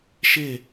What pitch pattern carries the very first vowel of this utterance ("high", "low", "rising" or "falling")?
falling